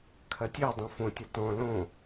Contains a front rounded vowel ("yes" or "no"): yes